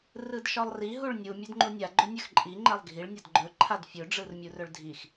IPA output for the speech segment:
rɯdʃɒlˠri ɦuɭnʲu mʲɵdŋ͡ǃunʲa ɡ͡ǃɵnʲɵxǃʼi ŋ͡ǃɛlˠɡʱiɭ nʲɒdɡ͡ǃɵ ǃʰadfʲɵ ɖ͡ʐɯrmʲurɵɭdʱix

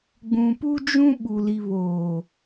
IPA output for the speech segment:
ɡ͡bũ˨pu˦ d͡ʒũ˦ ɓu˨ li˨βoː˨

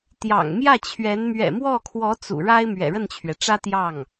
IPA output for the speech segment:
t̪jɑ̰˨˩ŋmjä˥˩t͡ɕʰɥɛ˧˥n mɥɛ̰˨˩mwɔ˥˩kʰwɔ˧˥ t͡sṵ˨˩ɻa˥ɪ̯ mɥɛ̰˨˩ɻə˥˩nt͡ɕʰɥɛ˩ʈ͡ʂä˥ t̪jɑ˥˩ŋ

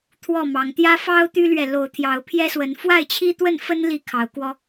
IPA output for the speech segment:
t̪ʰwɔ˥˨mɑ˨˦ŋ t̪jä˦ fɑ˦ʊ̯ t̪y˦lɥɛ˨lo˨˦ʊ̯ t̪ʰjɑ˨˦ʊ̯pʰjɛ˦swə˨˦n fwa˥˨ɪ̯t͡ɕʰi˦t̪wə˥˨nfə˦n li˥˨kʰɑ˨˦ʊ̯kwɔ˦

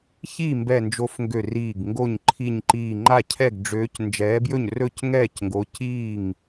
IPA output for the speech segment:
çiː˥˩mbɛ˧˩nd͡ʒo˨˥f ŋɡø˥˩riː˥˩ɡ ŋɡo˥˩ɲ ǃʰi˧˩ɲǃiː˧˩ ŋ͡ǃa˥˩cʰɛ˥˩ɡɖ͡ʐøː˨˥c nd͡ʒɛː˨˥bjɵ˥˩ɲ rɵ˥˩c ŋɛː˥˩cŋɡo˨˥ ciː˥˩ŋ

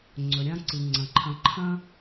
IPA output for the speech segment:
ŋ͡ǀɵ˩ɾʲã˥ǀɨ˩ ŋ͡ǀɐ̃˩ǃʰɐ̃˨ǃʰɐ̃˥

